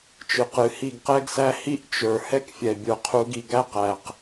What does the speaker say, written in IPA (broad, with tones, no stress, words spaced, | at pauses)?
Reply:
t͡ʃɨ˨qɨ˨ hi˦˨ɡqɛ˦ɡsæ˦ hi˦ʔt͡ʃə˞˨ hɛ˦kfʲɛ˨ bʲə˞˨qʰu˨˦ɡi˨ ɡæ˦qæ˨q